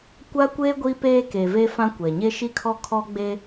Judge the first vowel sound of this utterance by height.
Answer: low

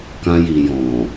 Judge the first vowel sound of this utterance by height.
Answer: low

